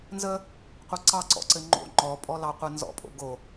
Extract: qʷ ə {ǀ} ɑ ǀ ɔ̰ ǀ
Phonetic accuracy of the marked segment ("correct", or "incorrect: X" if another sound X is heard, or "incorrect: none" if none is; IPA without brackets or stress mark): correct